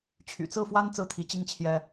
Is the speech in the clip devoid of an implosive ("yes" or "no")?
yes